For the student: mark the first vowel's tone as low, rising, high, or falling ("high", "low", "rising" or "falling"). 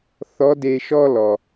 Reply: rising